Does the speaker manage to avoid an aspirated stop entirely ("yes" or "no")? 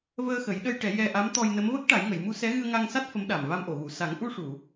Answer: yes